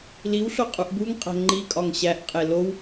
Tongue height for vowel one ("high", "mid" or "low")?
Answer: high